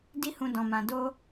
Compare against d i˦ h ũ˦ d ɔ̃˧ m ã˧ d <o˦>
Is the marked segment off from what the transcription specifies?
no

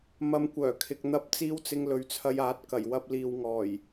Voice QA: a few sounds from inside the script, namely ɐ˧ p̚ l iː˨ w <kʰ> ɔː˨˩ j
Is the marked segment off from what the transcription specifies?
yes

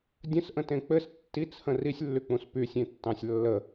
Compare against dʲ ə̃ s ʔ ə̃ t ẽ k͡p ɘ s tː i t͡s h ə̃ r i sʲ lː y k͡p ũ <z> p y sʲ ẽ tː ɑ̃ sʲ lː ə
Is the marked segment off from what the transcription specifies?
yes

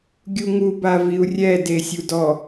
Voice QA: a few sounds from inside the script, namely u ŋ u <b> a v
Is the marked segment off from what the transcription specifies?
no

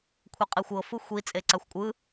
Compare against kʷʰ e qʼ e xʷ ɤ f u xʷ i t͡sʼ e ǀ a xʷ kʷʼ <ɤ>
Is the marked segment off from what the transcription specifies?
yes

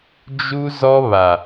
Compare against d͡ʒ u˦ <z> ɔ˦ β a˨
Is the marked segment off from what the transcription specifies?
no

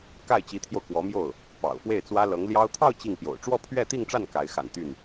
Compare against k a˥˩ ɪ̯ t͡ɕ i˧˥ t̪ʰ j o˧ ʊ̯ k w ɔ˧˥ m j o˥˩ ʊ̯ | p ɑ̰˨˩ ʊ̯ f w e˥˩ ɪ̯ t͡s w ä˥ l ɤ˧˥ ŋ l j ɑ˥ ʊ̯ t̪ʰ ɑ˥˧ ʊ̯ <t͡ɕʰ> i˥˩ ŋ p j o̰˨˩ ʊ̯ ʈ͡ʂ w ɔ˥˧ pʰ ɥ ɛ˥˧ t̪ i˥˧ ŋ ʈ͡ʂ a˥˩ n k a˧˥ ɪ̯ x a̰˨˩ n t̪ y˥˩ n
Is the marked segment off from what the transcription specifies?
yes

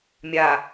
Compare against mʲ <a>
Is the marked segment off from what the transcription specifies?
no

